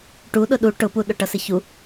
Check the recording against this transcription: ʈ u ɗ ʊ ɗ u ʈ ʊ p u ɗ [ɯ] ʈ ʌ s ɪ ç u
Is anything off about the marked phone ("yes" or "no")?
yes